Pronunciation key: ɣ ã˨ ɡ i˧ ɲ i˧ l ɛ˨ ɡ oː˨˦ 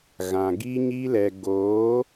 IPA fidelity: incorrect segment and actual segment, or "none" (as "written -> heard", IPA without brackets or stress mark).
none